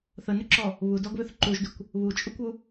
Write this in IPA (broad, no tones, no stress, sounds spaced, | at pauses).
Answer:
θ ə n ʏ ǁ ɔ | β u d ɔ ɡ β ʏ θ ǃ u ʒ d ʏ kʷ | β u t͡ʃʼ u kʷ u